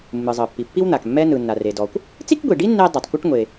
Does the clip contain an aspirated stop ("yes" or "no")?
no